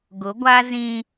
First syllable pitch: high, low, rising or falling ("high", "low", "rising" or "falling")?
rising